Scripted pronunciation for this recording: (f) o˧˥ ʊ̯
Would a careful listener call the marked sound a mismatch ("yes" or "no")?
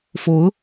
no